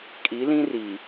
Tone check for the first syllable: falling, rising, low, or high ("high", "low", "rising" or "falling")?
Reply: rising